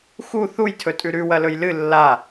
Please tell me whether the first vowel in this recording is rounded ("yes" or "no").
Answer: yes